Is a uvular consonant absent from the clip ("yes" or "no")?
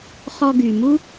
no